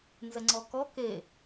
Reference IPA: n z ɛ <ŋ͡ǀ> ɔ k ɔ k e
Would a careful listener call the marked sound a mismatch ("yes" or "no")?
no